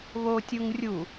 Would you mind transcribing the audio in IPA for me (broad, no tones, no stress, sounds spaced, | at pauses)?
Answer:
β o tʲ u ŋ rʲ u